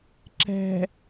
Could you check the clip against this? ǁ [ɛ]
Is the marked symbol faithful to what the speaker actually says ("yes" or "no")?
no